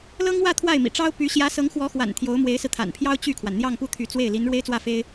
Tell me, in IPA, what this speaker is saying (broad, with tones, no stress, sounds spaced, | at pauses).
l ɤ˥ ŋ w ä˥˧ t̪ʰ w a˥˩ ɪ̯ m ḭ˨˩ ʈ͡ʂ ɑ˥ ʊ̯ p y˧˥ ɕ j ä˧˥ s ɤ˧˥ ŋ x w ɔ˧˥ x w a̰˨˩ n t̪ʰ j o˧˥ ʊ̯ m w e˧˥ ɪ̯ s ɹ̩˧ t̪ʰ a̰˨˩ n pʰ j ɑ˥ ʊ̯ t͡ɕ y˥˩ kʰ w a˩ n n̪ j ɑ˥˧ ŋ p u˥˩ t̪ʰ y˧˥ t͡s w e˥˩ ɪ̯ l i˧˥ n ɻ w e˥ ɪ̯ t͡s w ä˥˩ f e˥ ɪ̯